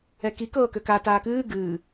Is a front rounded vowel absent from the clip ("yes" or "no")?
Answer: no